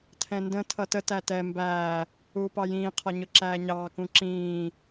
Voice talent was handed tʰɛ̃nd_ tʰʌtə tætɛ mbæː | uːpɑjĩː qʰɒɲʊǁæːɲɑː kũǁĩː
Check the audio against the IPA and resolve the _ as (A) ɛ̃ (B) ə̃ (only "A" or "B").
B